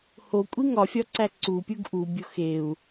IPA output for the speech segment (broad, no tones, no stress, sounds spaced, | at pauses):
h o kʷʼ i ŋ ɒ fʲ ɒ ǀ æ ǀ u pʲ u ɡ ʔ u bʲ o x e u̯